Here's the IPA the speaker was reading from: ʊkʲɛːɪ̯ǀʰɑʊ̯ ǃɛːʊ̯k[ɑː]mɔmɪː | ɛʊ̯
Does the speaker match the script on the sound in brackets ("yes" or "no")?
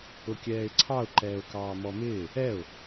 yes